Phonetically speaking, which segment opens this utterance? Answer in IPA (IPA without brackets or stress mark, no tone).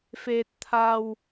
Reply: f